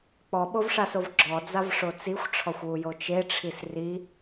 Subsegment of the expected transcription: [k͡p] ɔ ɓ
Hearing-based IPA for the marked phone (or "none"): k͡p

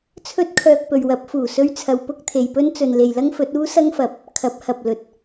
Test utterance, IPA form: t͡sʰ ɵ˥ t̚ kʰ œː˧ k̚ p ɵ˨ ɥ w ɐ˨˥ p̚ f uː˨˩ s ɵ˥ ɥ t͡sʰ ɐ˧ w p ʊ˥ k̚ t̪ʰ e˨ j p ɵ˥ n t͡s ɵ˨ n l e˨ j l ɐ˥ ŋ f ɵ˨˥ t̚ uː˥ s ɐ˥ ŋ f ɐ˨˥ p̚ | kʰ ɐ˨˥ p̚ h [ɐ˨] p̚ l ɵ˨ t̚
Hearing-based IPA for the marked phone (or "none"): ɐ˨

